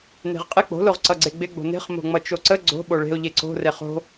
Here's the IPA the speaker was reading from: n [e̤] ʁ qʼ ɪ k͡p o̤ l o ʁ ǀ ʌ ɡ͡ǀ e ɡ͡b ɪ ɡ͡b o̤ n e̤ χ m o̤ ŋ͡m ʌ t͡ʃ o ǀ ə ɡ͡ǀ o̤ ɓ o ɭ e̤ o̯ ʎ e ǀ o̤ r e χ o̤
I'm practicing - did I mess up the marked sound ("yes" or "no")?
no